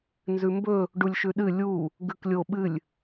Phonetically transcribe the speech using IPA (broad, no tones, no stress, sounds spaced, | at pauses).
n z ʉ m b ɵ | ɖ u lʲ ʃ ʉ ɗ ɨ lʲ u | ɡ ʉ k lʲ o ɓ ɨ lʲ